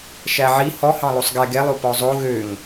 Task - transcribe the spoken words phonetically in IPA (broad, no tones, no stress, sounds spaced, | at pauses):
ʃ æ ʕ i h ɔ h ɑ̃ lˠ o sˤ ɡ ɛ ɡ ɛ lˠ o p ɔ zˤ o ɣ ø ŋ